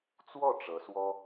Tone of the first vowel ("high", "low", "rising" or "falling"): falling